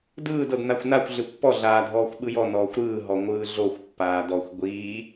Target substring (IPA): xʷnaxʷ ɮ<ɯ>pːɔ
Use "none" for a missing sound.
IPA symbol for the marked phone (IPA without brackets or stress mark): ɯ